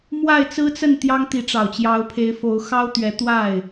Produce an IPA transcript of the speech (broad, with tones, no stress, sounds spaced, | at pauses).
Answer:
m w a˥˩ ɪ̯ t͡s ɹ̩˥ t͡s ə˥˩ n t̪ j ɑ˥ ŋ t̪ i˧˥ ʈ͡ʂ ɑ˨˩ ʊ̯ t͡ɕ j ɑ˧˥ ʊ̯ pʰ e˧˥ ɪ̯ f o˧˥ ʊ̯ x ɑ˥ ʊ̯ t̪ ɥ ɛ˧˥ t̪ w a˥˩ ɪ̯